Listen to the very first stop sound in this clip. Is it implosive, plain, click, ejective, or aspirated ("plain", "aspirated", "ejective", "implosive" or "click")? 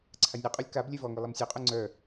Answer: click